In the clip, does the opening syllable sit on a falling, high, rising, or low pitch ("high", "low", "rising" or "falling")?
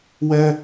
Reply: high